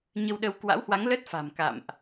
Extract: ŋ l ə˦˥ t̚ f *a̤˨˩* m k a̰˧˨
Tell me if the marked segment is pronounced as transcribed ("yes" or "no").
yes